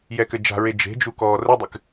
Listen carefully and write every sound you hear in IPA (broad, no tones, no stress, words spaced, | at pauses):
jɛkɘd͡ʒa̤ɹe d͡ʒe̤d͡ʒu kɔːrɘdˤɨk